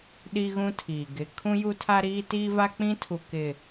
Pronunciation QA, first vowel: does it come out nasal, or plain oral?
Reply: oral